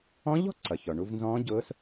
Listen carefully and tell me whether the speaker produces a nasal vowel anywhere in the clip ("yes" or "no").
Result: yes